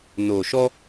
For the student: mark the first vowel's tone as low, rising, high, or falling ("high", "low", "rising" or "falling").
low